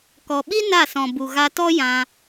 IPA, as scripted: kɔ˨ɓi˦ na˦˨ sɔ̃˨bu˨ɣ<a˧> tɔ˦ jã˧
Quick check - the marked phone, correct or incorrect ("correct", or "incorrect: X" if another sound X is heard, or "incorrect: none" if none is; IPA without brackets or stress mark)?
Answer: correct